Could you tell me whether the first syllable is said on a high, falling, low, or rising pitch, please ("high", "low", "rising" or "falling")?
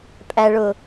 low